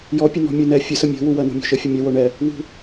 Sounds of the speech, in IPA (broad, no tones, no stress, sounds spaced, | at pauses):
j ɔ pʲ ə n ɔ̤ mʲ u n ɛ fʲ ə s ə mʲ o̤ w u w ɜ n ṳ mʲ o̤ ʃ ə fʲ ə mʲ ɛ w o ɳ ɛ | w ṳ